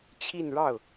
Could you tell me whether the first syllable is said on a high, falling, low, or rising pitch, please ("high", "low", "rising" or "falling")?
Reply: falling